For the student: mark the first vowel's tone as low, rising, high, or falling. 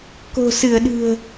low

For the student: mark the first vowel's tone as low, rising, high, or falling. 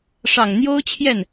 low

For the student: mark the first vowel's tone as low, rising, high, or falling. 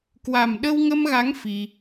low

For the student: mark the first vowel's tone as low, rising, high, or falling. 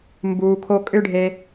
low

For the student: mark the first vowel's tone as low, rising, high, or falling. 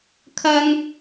high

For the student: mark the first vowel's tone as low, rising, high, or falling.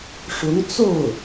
rising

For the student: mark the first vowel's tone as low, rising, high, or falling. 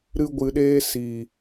high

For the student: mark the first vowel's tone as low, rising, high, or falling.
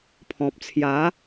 low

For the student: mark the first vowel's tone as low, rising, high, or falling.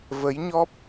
rising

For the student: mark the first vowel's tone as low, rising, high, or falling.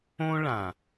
high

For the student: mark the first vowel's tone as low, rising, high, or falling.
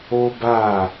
high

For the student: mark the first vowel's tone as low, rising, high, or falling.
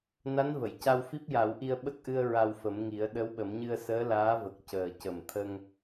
rising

